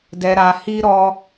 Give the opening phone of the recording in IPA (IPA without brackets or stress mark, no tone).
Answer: d